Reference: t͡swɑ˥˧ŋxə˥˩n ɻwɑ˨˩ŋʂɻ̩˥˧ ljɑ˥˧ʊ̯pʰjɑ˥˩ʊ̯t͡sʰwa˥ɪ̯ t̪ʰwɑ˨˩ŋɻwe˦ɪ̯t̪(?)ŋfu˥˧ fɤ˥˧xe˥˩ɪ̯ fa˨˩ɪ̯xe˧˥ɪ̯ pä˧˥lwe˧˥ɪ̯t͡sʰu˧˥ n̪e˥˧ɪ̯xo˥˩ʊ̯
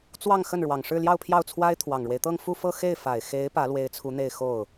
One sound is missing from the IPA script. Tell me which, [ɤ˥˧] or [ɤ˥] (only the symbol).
ɤ˥˧